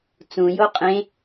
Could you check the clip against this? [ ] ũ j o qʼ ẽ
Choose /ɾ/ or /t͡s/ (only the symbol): t͡s